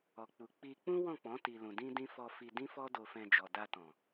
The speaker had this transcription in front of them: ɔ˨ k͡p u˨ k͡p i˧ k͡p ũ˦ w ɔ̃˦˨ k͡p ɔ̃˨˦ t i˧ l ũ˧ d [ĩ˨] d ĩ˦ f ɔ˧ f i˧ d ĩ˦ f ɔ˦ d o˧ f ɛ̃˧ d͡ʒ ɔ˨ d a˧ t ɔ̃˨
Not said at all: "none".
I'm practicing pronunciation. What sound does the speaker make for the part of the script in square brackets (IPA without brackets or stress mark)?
ĩ˦